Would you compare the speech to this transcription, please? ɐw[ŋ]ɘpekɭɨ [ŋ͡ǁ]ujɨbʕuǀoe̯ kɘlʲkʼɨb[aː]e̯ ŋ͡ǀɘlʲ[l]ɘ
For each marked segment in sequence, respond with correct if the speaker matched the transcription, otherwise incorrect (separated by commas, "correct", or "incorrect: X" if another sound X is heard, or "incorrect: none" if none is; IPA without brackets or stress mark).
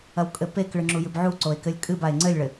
incorrect: kʼ, correct, incorrect: a, incorrect: ɭ